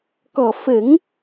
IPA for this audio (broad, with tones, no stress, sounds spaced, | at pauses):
k ɔ˨˩ f ə˨˩˦ ŋ